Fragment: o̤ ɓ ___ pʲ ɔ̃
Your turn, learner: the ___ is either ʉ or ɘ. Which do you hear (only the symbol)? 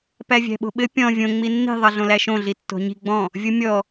ɘ